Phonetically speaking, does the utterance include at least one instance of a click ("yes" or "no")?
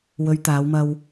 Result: no